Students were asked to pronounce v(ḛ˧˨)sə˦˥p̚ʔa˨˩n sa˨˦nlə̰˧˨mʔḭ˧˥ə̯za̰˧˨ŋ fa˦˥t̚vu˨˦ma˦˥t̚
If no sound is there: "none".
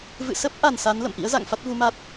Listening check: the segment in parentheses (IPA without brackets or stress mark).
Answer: ɨ̰˧˨